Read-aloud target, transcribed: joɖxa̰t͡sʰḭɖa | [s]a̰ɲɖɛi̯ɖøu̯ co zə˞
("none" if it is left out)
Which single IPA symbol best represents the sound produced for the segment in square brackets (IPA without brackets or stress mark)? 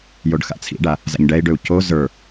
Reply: z